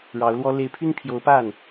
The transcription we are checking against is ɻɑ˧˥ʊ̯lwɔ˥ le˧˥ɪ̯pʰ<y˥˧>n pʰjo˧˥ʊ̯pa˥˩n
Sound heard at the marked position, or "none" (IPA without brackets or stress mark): y˥